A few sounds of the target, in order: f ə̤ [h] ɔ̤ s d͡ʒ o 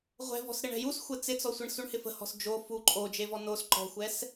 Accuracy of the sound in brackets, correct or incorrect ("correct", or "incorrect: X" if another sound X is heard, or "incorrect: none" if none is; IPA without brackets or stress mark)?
correct